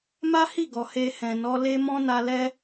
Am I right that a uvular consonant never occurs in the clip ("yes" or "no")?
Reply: yes